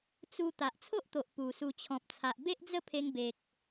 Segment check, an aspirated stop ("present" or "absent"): present